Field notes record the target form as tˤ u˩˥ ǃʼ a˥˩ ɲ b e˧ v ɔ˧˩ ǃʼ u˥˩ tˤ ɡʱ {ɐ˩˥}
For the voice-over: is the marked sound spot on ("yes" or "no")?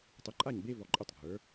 no